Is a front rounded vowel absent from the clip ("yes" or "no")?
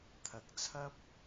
yes